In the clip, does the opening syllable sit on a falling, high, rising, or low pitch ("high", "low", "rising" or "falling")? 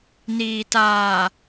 low